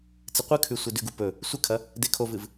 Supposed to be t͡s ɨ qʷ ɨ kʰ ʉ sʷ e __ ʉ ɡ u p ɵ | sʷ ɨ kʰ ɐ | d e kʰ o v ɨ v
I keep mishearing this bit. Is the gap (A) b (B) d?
B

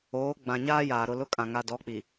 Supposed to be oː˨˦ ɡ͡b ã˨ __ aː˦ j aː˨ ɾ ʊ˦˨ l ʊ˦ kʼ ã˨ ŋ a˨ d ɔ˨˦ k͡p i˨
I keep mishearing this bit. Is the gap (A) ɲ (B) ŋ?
A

